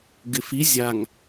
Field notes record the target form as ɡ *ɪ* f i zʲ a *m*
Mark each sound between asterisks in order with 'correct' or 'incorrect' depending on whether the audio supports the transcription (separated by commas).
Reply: correct, incorrect